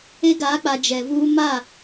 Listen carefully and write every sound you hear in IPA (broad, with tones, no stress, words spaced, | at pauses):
e˦ɡaː˨˦k͡pa˨ d͡ʒɛ˨vuː˦ ma˦˨